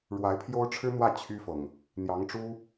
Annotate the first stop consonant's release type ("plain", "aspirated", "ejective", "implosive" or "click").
aspirated